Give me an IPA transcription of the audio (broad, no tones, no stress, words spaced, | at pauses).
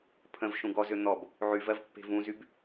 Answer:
pʰə̃v ʃũɡɔzø n̪ɔb | ʕyvɜv pːe̤vũzyb